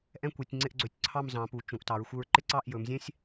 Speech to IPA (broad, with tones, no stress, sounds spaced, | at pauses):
ʔ ɛ̃˥ kʷ e˩˧ tʲ ŋ͡ǀ ɪ˥˧ ʔ ɡ͡ǀ ɵ˧˩ tʲ ǀʰ ɑ˥˧ m z ɑ̃˩˧ p u˩˧ t͡ʃ ũ˩˧ ʔ t ɑ˩˧ ɹ xʷ ɪ˧ ɹ ǃ ɪ˥ ǀ ɑ˥˧ ʔ j ɵ˩˧ m zʲ ɛ̃˥ sʲ